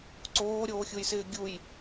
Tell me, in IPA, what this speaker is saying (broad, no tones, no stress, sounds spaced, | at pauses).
ǀ oː ɾʲ oː xʲ u j s ɪː ɡʲ u j